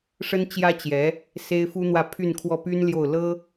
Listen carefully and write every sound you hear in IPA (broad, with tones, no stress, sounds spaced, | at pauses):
ʂ ə˥ n t͡ɕ j ä˥ t͡ɕ j ɛ˧˥ | s e˥ ɪ̯ f u˥ n̪ w ä˥˧ pʰ y˥˧ n kʰ w ɔ˥˩ p y˥ n l j o˥˩ ʊ̯ l ɤ˥